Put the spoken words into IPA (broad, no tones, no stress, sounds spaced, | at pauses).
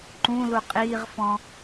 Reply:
ǃ ũ l u qʼ iː ʁ f ɔ̃